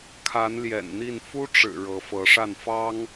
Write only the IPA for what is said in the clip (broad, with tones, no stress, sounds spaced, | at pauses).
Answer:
kʰ a˧˥ n l j ɛ̰˨˩ n n̪ i˥˩ n f u˥ ʈ͡ʂ ɻ̩˨˩ ɻ ɤ˧˥ f ɤ˧˥ ʂ a˥˩ n f ɑ˥ ŋ